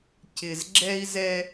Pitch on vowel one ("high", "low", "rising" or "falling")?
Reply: low